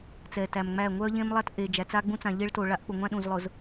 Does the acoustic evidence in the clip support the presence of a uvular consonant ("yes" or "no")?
no